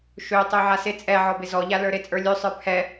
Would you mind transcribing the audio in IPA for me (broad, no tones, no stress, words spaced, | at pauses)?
ʃøtˤy ʕasɪ t͡sʼɛ ʕɔbɪzɔʎa lə˞ɾɪ t͡sʼə˞lʲø sˤə˞pʰɛ